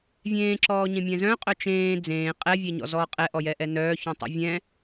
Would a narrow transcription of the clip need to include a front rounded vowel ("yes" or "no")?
yes